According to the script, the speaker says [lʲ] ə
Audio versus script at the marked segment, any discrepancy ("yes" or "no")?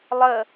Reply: yes